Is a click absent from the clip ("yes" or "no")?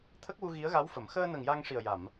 yes